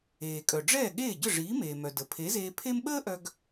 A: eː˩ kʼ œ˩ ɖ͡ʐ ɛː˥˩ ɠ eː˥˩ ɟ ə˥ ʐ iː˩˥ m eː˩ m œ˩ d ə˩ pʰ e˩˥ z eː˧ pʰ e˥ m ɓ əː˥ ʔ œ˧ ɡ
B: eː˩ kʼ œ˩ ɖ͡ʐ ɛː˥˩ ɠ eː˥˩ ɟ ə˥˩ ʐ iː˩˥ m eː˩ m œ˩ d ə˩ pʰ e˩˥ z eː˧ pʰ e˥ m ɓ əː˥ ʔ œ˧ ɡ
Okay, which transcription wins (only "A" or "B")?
B